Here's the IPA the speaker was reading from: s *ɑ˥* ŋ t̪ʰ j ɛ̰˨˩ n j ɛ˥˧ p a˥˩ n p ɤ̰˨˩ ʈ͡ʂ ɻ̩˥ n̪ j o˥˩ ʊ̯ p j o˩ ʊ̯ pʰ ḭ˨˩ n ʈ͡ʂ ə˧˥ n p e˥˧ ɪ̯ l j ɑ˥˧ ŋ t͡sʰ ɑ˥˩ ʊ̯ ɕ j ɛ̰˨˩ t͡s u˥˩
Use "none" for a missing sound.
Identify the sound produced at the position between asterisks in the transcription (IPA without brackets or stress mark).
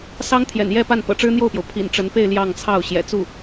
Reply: ɑ˥